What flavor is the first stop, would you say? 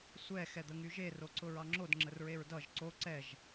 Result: plain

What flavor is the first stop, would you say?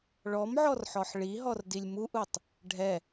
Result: plain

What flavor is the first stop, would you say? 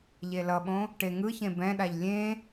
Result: implosive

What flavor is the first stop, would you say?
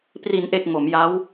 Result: plain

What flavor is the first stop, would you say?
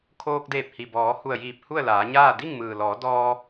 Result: aspirated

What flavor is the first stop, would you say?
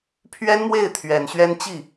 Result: aspirated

